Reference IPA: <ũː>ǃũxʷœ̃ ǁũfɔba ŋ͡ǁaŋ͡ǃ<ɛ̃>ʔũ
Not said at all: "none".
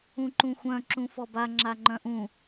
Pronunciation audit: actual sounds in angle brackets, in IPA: ũ, œ̃

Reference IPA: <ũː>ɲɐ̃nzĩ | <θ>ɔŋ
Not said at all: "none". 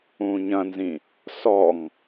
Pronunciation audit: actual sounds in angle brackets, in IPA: ũː, s

